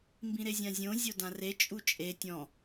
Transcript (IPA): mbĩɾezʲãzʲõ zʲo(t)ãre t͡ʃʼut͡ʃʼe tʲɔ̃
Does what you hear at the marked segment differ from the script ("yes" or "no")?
yes